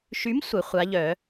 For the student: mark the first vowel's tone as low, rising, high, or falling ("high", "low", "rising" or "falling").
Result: rising